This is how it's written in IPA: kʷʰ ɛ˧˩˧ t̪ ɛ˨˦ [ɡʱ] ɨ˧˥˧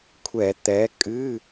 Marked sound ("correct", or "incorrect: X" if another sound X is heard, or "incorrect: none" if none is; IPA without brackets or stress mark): incorrect: kʼ